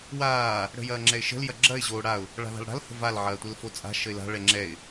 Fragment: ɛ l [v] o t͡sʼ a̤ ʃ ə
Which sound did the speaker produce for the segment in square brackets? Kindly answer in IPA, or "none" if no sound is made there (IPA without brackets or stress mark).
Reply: f